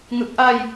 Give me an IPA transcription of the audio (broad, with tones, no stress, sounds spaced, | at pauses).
ŋ ɯ˨˩ k̚ ʔ a˧ j